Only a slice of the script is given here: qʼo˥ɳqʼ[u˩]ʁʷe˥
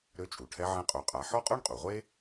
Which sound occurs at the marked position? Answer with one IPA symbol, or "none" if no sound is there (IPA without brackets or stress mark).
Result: u˩